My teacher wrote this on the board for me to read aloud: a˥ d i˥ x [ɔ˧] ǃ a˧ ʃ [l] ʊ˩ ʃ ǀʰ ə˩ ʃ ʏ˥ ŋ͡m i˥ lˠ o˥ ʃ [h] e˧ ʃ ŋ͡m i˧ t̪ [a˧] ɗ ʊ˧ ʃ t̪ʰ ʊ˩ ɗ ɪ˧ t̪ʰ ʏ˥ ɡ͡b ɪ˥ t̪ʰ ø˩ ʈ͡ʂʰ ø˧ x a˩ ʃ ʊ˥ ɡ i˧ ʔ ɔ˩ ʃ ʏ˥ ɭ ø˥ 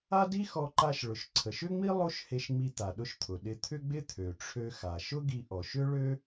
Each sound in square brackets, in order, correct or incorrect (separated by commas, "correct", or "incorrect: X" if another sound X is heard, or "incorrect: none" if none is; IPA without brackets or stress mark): correct, incorrect: ɭ, correct, incorrect: a˩